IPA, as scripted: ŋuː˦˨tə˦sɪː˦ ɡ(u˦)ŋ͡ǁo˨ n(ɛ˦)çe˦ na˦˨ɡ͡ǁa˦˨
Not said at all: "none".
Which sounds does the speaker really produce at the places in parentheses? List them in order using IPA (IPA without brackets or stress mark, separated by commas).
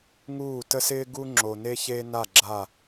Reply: u˦, e˦